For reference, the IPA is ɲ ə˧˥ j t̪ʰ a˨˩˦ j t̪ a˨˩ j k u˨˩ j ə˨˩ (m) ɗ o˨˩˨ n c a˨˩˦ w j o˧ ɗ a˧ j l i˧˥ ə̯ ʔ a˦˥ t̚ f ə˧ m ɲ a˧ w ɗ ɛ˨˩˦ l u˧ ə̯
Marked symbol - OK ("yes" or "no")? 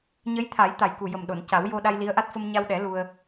yes